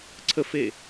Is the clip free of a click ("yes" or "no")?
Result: no